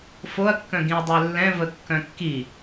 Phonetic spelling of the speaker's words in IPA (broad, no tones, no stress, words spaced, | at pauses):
foɐ̯kːœ̃ ɡĩɐ̯dˤœlːɛ̃ vəkːœ̃kːi